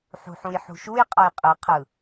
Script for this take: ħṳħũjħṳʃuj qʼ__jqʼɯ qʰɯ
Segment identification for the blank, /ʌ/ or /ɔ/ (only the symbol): ʌ